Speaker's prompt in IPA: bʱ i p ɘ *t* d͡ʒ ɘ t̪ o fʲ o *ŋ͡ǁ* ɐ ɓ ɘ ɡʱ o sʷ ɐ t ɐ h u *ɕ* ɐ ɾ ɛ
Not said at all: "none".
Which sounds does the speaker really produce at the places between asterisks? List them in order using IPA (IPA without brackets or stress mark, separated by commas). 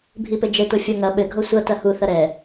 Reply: none, ŋ, θ